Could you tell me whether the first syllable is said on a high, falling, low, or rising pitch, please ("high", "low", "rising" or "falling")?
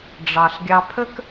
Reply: low